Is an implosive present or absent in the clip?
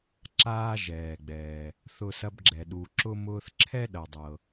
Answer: present